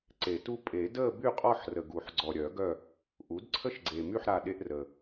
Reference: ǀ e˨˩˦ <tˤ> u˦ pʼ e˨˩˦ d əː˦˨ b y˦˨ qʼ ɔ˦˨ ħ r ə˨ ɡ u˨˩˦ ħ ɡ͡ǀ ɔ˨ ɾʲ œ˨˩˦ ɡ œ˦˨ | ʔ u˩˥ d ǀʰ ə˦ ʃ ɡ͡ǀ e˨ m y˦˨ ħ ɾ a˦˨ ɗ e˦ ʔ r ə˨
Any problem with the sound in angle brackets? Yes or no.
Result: yes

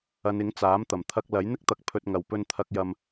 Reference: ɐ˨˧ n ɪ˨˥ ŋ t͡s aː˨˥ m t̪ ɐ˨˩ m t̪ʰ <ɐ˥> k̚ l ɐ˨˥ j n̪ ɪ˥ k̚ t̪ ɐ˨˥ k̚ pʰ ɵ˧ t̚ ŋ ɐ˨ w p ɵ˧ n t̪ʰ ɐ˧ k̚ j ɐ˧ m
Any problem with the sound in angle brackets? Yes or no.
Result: yes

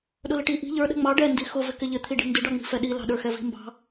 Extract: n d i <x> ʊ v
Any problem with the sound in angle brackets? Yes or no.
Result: no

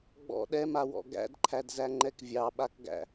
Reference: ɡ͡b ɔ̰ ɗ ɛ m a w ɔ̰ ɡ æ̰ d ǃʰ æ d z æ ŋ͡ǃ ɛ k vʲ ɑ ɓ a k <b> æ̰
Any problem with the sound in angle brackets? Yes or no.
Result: yes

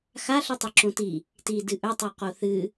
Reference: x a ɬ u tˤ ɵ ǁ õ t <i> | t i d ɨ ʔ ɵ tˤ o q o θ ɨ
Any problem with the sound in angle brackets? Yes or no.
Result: no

